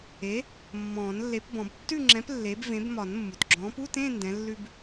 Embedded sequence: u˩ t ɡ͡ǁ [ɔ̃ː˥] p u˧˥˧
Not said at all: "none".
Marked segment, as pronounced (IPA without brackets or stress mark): ɔ̃ː˨˥